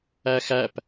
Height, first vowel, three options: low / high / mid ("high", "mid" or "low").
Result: low